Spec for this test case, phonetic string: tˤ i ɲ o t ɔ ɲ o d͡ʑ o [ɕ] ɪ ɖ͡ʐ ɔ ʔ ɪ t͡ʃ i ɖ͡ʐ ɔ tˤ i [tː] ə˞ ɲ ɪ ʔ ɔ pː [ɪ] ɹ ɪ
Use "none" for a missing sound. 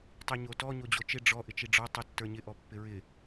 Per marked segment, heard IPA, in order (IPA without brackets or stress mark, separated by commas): t͡ʃ, tː, ɪ